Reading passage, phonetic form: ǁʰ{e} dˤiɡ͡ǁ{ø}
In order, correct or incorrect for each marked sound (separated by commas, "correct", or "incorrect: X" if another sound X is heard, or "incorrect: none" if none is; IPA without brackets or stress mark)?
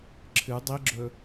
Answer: incorrect: ɨ, incorrect: ɵ